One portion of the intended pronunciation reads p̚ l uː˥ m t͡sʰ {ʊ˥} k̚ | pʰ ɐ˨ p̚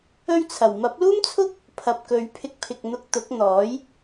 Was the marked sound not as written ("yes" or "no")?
no